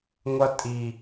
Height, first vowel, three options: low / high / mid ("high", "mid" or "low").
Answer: mid